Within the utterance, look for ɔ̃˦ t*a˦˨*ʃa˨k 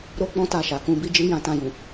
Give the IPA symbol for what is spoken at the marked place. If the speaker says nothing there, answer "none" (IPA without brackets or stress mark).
a˦˨